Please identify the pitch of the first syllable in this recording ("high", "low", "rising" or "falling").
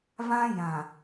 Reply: high